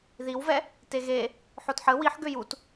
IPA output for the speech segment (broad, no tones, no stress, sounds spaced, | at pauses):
ð i w v ɛ | t e ɣ e | ħ o t ħ ə w i ħ ɡ ø j u t